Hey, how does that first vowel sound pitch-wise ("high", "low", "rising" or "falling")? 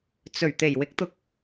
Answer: low